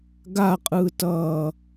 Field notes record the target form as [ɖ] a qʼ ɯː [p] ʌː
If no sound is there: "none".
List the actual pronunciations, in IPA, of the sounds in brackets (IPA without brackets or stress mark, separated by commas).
ɡ, t